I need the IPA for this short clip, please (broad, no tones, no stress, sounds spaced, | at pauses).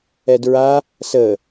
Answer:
ɛ d ɹ a | s ə